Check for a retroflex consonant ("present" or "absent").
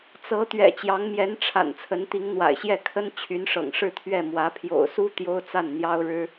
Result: present